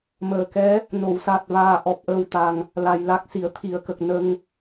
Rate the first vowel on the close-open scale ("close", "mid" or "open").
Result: mid